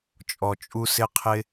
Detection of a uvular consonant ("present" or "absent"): present